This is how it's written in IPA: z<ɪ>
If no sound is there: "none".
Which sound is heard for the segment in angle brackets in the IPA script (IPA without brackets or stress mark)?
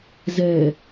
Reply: ɛ